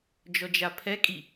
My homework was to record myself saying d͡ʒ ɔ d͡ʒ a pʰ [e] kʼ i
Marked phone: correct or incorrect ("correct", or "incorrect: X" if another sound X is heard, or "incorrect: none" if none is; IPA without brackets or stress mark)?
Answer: incorrect: ɛ